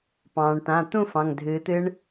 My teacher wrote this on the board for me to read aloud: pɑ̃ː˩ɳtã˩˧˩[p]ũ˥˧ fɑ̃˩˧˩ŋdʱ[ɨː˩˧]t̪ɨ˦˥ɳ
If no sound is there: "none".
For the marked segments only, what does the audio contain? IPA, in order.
t̪, ɨː˩˧

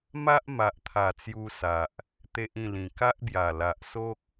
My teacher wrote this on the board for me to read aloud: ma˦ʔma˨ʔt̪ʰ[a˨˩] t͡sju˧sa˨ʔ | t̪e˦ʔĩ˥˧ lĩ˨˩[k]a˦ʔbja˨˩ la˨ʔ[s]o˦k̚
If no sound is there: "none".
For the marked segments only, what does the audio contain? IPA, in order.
a˨˩, k, s

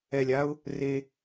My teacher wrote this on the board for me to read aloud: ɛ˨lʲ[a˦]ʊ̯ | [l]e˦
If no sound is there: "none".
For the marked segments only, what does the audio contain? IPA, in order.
a˦, r

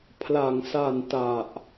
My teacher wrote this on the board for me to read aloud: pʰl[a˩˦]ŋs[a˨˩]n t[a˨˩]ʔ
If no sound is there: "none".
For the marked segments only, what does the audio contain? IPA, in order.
a˩˦, a˨˩, a˨˩

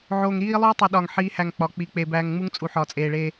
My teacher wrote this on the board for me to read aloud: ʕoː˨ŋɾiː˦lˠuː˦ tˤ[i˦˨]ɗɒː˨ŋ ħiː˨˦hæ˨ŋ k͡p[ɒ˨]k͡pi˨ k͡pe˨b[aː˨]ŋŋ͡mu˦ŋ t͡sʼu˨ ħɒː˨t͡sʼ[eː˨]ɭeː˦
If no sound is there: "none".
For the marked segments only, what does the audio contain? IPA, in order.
i˨, ɒ˨, æː˨, eː˨

